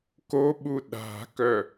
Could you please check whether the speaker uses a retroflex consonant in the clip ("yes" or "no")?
no